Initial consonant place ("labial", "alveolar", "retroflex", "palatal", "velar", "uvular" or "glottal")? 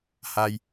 glottal